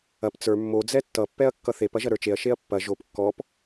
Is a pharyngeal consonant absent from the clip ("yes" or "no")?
yes